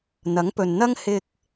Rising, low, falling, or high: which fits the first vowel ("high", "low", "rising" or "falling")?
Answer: rising